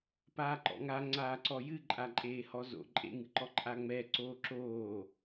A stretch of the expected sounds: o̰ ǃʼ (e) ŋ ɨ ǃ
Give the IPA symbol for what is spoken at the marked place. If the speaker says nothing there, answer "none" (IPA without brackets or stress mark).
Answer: ḛ